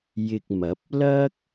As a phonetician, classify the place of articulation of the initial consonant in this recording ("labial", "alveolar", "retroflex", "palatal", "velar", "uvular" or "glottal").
palatal